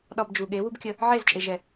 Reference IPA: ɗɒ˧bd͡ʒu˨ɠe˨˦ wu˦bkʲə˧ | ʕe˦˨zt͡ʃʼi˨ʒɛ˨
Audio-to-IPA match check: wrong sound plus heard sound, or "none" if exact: i˨ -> e˨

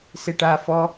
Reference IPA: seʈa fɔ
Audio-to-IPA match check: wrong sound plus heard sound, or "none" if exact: none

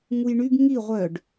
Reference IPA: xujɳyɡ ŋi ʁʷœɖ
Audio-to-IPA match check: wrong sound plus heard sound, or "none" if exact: x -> ŋ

